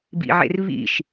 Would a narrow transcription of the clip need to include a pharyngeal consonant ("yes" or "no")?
yes